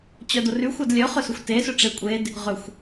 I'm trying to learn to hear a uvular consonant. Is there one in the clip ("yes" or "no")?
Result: yes